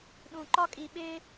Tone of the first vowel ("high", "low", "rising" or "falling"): low